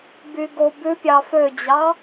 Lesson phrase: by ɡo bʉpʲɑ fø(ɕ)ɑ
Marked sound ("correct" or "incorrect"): incorrect